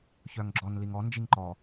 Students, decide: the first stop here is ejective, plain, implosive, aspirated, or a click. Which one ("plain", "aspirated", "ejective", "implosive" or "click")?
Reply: click